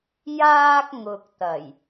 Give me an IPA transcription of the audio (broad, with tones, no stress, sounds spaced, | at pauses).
j aː˧ k̚ ŋ ʊ˨ k̚ t̪ ɐ˨˩ j